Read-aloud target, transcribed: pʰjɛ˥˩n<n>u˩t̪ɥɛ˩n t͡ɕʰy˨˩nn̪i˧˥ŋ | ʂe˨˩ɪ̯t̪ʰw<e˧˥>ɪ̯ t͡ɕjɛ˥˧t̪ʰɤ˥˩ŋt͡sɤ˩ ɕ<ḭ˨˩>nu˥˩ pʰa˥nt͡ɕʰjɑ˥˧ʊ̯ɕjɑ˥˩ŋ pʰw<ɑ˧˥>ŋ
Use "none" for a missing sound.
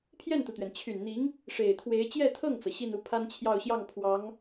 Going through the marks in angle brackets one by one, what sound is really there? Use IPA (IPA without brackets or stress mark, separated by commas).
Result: t̪, e˧˥, i˥˧, ɑ˧˥